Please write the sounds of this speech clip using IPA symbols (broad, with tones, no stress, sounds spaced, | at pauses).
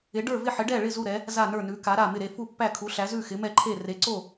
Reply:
ɪ˧˥ ɖ ə˞˥˧ v ɪ˥˧ ħ ɪ˧˥ ɖ ɛ˥˧ ɭ ɪ˥˧ z u˥˧ ɾ ɛ˧˥ | z a˥˧ n ə˞˥˧ n ʉ˧˥ k a˧˥ ɾ a˥˧ m ɪ˥˧ ɾ e˥˧ f u˥˧ pː æ˥˧ kʰ u˧˥ ɬ æ˧˥ z ʉ˥˧ x ɪ˧˥ m ɛ˥˧ ǃʰ e˥˧ r e˧˥ ǀ o˥˧